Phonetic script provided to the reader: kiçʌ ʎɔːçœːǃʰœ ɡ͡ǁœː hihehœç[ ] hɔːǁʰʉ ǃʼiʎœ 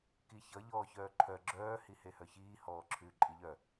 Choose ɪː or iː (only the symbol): iː